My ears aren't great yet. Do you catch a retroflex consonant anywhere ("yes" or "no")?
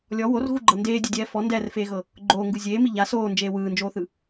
no